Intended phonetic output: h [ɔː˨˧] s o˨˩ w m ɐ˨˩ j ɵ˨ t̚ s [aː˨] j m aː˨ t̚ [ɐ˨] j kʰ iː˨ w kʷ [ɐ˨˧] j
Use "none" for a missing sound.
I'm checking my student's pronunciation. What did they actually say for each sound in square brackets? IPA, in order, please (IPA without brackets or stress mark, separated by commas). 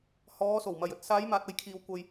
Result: ɔː˨˧, aː˨˧, ɐ˨, ɐ˨